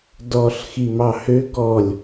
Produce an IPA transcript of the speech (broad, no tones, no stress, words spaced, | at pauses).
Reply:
dɔɬ ximɑhø ɡɔlʲ